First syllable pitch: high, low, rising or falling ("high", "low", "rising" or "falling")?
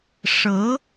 rising